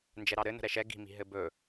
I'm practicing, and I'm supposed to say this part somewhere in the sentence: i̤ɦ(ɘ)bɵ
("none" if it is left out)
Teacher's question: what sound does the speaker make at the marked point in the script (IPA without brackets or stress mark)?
ɘ